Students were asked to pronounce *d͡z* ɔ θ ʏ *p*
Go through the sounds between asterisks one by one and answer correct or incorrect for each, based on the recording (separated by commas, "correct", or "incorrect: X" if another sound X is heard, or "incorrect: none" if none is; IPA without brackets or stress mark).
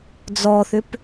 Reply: correct, correct